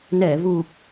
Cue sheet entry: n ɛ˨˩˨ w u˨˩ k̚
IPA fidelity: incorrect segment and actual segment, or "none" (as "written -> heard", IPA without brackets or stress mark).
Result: w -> v